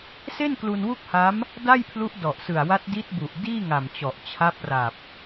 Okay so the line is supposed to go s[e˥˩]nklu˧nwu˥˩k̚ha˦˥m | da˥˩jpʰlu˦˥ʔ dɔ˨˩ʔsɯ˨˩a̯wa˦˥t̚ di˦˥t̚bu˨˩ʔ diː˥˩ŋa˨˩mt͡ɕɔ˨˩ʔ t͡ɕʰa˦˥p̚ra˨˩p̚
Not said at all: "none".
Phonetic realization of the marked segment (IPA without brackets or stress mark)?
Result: e˥˩